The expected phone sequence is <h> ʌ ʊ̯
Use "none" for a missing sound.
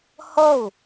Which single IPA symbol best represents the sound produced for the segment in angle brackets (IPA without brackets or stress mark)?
h